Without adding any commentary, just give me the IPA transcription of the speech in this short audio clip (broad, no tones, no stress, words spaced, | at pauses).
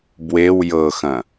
bwew jɤxɐ̃